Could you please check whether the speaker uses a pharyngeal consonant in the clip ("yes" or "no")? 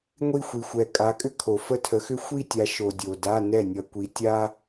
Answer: no